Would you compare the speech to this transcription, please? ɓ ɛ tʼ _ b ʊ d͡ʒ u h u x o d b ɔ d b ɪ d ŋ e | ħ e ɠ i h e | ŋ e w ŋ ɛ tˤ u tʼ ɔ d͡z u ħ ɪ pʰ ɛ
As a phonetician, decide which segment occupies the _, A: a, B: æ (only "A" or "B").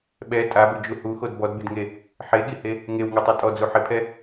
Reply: A